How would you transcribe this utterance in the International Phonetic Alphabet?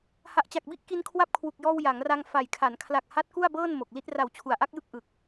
ha˨˩ʔt͡ɕa˨˩k̚bi˦˥ʔ ki˧n kʰwa˦˥p̚kʰwu˨˩k̚jɔː˧w ja˩˦ŋra˧ŋ fa˨˩j kʰa˩˦n kʰla˨˩k̚ ha˦˥t̚ ku˥˩a̯bɤː˥˩n mo˨˩k̚li˦˥t̚ ra˨˩wt͡ɕʰu˩˦a̯ʔa˦˥k̚jɯ˥˩k̚ ʔɯ˨˩k̚

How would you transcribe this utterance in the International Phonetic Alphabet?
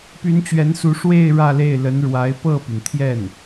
py˧˥nt͡ɕɥɛ˧˥nsu˧˥ ʂwe˥˧ɪ̯ ɻä˥˧le˥˩ɪ̯ lə˧˥nɻwa˧˥ɪ̯ pɤ˥˩py˩nt̪ʰjɛ˥˩n

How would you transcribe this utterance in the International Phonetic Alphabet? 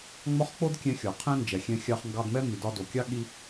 ŋ͡mɒ˥χ k͡po˥dkʲɛ̃˧xʲɒ˩ qʰɛ̃˥nd͡ʒɛ˩ xʲɛ̃˧xʲɑ˧χ ŋɡɑ˧dmɛ˥ mi˩dɒ˧do˩kʲɑ˥ ɠi˧

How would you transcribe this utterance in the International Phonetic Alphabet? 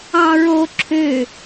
ɑ̃ɹo ǁʰø

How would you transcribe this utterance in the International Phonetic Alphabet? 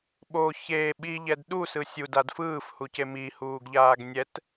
ɓo çe ɓiʎɛd ɗusɯ sʲudad fɯːfhuce mihuːɡʎaːɡ nʲɛt

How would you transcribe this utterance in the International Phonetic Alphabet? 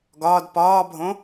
ɡɒːd pɒːbʱõ

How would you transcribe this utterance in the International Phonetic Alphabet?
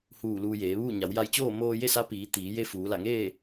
huː˧˩ luː˧ jeː˩˧ʋuː˥˨ ɲa˩˧wja˧jt͡ɕoː˥˨ moː˧je˥˨sa˧˥ piː˩˧ t̪iː˩˧ je˧ fuː˩˧la˧˩ŋeː˥˨

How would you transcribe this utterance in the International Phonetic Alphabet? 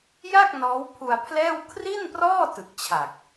ja˥˩k̚ nɔː˦˥wpʰu˧a̯pʰlɛː˥˩w kʰri˥˩nprɔː˥˩ tɯ˨˩k̚t͡ɕʰa˨˩k̚

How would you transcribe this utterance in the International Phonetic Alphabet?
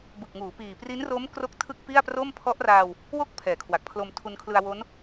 bɯ˨˩k̚ŋuː˩˦piː˨˩ pri˦˥nro˦˥mkro˦˥k̚ tʰɯ˥˩k̚pi˥˩a̯pro˥˩m pʰɔ˦˥ʔraː˧w | wo˥˩k̚ pʰɛː˩˦kʰwa˨˩k̚pʰlo˧m tʰu˧nkʰlɯ˧a̯ wo˦˥n

